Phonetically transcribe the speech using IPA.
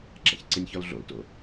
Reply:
ɡ͡ǁa̰çǀɪnʲçɔl ɮo̰lto̰

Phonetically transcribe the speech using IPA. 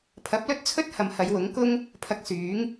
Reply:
pʰɐ˨˥p̚lɵ˥t̚t͡sʰɵ˥t̚ hɐ˨˧mhɐ˨˧jwʊ˨˥ŋkʊ˥ŋ | pʰɐ˧k̚syː˨˥ŋ

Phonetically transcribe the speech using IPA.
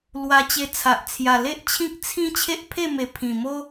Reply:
lwa˧t͡ɕe˧t͡sʰa˨ʔ t͡sʰja˨˩le˦ʔt͡ɕʰĩ˦k̚ t͡sʰĩ˦ t͡ɕʰe˦ʔpʰe˥˧me˨˩ pʰĩ˨˩mo˦

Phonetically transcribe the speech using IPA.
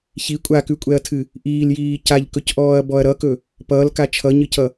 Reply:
çi kʷʼakʉkʷʼɛɐ̯tʰɨ | ʔiːljiː caʎkɵcʔɔːɐ̯bɔɐ̯ ɾʌkɵ | pʌːlka t͡ʃʰʌɲɨcʰʌ

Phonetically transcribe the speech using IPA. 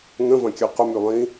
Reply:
ŋə̃vɐ̃kʲø qʊmylˠĩː

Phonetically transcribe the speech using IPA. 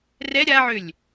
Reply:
rɛ ɾʲaʕølʲ

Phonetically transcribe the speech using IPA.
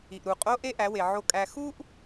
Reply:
i˩ʔɾu˩qʼo˧˥ ʔe˧˥ʔæ˩˧we˩ ʕo˧kʼæ˧ xu˥ʔ

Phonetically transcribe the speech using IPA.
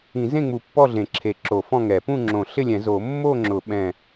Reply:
ĩ˨˩˦ zẽ˥˨ŋ͡mu˨˩˦ pːɔ˥˨ɮẽ˨˩˦ǁʰe˨˩˦ ǁo˨˩˦fɔ̃˥˨ŋɛ˨˩˦ pũ˥˨ŋ͡ǁõ˨˩˦ ɬɪ˥˨lʲɛ̃˨˩˦zo˨˩˦ mːo˥˨ŋ͡ǁʊ˨˩˦ ɓɛ̃˥˨

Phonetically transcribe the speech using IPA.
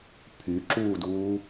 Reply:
pʰyǁuːduː

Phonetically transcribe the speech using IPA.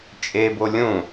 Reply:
t͡ʃʼebo lʲũ

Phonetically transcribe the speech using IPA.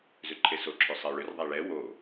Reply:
zʏǃʰeso ǁʰʏsˤɛo̯ɭʏr ðˤæɭɛ wo

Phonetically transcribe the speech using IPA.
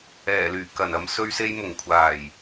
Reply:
ɛː˨˩lyː˨˩ kɐ˨˩n ɐ˨˧m sɵ˧ɥse˧j mʊ˨˩ŋkʷʰaː˨˩j

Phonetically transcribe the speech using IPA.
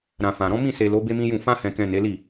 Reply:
ɾã˨fã˨ɾɔ̃˨˦ mĩ˦˨se˨lo˨˦ be˦mĩ˦jũ˦˨ fã˧hɛ̃˨kɛ̃˨ ne˨˦li˦˨

